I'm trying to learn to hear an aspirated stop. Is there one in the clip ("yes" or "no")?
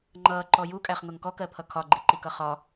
yes